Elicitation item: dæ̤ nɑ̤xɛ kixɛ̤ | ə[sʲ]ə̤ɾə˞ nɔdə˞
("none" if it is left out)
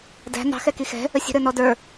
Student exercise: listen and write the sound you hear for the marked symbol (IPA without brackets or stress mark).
sʲ